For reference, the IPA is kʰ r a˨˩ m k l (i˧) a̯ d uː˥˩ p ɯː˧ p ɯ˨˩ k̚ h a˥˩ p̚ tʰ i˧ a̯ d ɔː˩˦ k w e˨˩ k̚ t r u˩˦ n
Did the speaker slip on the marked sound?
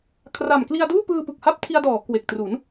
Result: no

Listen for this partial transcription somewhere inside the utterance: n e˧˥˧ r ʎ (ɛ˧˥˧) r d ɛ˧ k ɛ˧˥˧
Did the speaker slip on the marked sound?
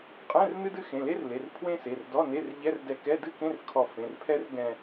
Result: no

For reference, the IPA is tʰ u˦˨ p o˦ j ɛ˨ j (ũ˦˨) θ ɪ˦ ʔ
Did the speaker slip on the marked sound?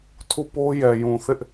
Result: yes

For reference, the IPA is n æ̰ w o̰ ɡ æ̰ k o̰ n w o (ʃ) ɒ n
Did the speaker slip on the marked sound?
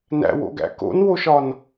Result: no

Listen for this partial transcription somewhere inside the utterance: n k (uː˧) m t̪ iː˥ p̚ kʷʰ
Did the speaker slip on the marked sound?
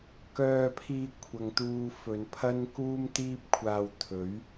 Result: yes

